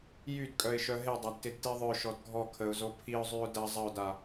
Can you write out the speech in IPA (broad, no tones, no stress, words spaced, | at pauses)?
jydkʼœɪ̯ʃœ ɦedˤadtɪdti ðˤœʃɔd ɡʱɔ kʰəʊ̯zo pʰiʊ̯zˤyʊ̯ dɐ zˤəʊ̯da